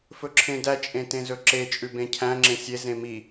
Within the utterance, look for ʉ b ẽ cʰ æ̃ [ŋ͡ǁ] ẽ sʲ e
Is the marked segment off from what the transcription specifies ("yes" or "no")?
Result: no